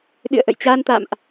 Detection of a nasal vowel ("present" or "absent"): absent